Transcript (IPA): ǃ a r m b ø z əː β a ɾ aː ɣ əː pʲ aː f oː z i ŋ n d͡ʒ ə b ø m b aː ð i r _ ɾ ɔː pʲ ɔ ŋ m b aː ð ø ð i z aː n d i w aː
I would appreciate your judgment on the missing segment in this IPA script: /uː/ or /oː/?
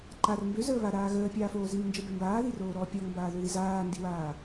oː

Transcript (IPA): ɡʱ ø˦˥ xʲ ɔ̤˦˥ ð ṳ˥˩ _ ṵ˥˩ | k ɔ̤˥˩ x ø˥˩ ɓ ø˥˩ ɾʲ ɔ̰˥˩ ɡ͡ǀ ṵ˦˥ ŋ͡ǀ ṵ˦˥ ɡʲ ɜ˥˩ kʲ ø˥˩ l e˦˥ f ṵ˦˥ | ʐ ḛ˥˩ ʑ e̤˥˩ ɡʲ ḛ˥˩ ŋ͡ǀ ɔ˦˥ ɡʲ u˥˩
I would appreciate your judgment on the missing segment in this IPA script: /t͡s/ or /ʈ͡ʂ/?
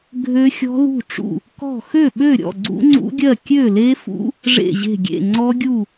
ʈ͡ʂ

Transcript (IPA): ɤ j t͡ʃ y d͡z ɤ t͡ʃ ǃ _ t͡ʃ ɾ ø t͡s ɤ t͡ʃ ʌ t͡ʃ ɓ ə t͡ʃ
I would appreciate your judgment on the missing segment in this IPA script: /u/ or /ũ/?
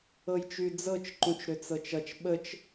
ũ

